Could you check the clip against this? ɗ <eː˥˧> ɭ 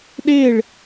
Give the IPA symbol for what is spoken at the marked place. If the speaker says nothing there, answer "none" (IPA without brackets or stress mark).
eː˥˧